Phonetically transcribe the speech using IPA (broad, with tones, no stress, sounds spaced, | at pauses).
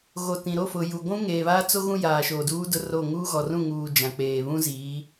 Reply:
ɣ o˨ t ĩ˨ ɾ o˦˨ f ʊ˨ j u˨ ɡʷ ũ˦ ŋ eː˨ β a˦ t͡s o˦ ɣ ũ˦ j aː˨ ʃ oː˨ d uː˦ d ʊ˦ r o˦˨ ŋ uː˦ ɣ ɔ˨ r ũ˦˨ ŋ uː˨ d͡ʒ ã˨ k͡p eː˨ β ũ˦ z iː˨˦